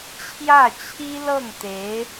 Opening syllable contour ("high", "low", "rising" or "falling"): falling